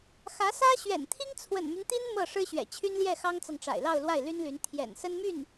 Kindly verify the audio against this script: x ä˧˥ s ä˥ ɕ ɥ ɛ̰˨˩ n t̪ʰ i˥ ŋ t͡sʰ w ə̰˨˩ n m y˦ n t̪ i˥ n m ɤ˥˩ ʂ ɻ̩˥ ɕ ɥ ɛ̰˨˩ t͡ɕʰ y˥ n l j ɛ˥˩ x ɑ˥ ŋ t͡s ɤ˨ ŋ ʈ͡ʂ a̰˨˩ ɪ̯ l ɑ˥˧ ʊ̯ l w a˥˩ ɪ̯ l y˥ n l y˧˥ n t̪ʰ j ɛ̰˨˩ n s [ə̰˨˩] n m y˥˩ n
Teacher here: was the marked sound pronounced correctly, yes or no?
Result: no